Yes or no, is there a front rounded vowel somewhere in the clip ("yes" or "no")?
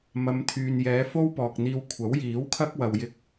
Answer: yes